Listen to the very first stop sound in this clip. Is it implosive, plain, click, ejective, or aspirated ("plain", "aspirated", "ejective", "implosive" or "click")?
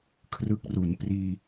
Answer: aspirated